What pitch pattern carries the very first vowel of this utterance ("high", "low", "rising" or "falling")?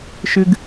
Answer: high